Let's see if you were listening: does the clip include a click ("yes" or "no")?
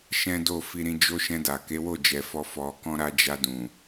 no